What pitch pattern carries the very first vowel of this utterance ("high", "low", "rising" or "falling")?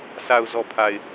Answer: low